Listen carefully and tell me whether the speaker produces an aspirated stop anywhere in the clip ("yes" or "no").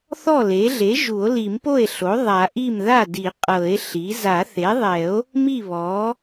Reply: no